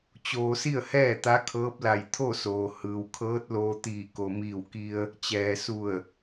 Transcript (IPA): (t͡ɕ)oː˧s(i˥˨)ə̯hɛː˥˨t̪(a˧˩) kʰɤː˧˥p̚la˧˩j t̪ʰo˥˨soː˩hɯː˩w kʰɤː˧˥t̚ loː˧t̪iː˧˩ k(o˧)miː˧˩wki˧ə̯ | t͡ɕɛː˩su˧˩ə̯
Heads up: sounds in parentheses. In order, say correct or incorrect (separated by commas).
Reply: correct, correct, incorrect, incorrect